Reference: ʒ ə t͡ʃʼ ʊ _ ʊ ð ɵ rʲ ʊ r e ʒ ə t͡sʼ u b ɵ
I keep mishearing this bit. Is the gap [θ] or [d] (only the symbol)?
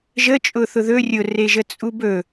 θ